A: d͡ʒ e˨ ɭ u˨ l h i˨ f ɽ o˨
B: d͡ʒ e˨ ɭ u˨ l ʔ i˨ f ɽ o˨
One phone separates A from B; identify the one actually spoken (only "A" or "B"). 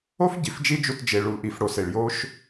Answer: B